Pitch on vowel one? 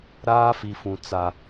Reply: high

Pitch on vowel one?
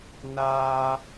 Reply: high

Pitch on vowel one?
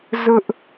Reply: high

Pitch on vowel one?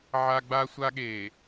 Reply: high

